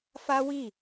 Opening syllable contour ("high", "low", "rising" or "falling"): high